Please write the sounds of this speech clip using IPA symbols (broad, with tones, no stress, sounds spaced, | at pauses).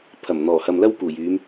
pʰ ɐ˨˩ m n̪ ɔː˨˩ h ɐ˨ m l ɐ˥ w k uː˨˩ j yː˨˧ m